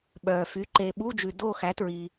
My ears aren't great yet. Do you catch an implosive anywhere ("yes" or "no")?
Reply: yes